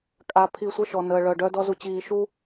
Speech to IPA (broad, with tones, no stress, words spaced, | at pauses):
kʼa˨pʰi˨ sʷə˦˨ʃɔ˨nəː˨ ɭœ˨ɖœ˦ dɔ˦zu˨t͡ɕiː˨ ʃu˦